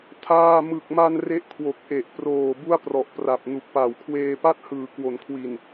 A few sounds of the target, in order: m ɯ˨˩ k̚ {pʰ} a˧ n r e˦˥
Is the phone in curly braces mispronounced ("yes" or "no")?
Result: yes